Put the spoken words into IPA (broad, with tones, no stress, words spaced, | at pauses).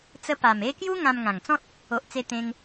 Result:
t͡sə˧ pa˨˩me˦ kju˦ ŋã˧mŋã˨˩ŋt͡sɔ̃˦t̚ | o˨ʔt͡se˧ t̪ẽ˧ŋ